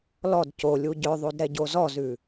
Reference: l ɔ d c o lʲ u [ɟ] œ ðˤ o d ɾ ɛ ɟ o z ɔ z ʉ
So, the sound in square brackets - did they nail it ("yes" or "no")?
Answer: yes